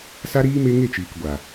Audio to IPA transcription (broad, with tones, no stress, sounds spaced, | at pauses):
s a˦ ɾ iː˦ m e˦ ŋ e˦˨ t͡ʃ iː˨ k ɡʷ a˨